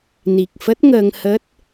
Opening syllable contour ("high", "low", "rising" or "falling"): low